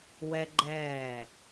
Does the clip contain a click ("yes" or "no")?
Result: yes